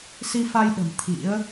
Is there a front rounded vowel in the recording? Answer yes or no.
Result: no